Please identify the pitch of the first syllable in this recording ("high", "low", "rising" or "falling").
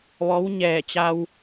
rising